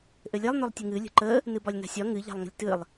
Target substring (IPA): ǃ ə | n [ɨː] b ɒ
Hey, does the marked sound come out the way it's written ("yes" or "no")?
no